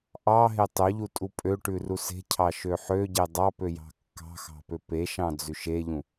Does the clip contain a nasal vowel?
yes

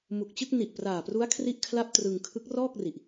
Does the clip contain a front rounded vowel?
no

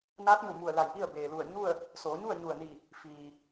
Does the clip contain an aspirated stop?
no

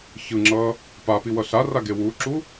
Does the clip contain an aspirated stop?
no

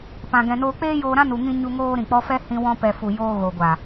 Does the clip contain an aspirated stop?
no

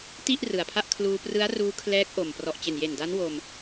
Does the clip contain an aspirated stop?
yes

